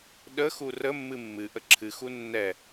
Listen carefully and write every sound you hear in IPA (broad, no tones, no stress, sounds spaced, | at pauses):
ɗ ə x u r ə mː ɨ mː ɨ ʔ ə ǁʰ ɨ x u nː ɛ